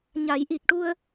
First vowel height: low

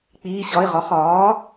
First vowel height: high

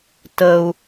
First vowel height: mid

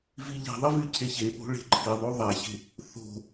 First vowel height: high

